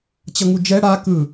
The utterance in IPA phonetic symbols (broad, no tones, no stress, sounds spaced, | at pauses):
t͡ɕ ʌ ŋ u d͡ʒ ɛ ɽ a k ɯ